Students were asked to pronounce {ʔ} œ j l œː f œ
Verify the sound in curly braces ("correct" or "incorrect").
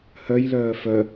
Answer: incorrect